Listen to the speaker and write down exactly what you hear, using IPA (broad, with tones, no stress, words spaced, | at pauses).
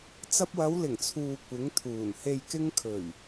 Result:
t͡sɐ˧p̚wɐ˨˧wlɪ˨˩ŋt͡sʰuː˨ kʷɪ˨˥ŋt̪ʰuː˨˩n he˨jkɪ˧ŋ kʰɵ˨˩ɥ